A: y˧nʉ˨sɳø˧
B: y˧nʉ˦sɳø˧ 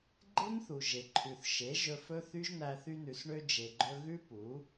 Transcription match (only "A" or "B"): A